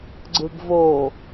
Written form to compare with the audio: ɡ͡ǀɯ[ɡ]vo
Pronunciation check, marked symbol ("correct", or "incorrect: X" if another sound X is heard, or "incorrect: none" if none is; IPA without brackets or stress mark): correct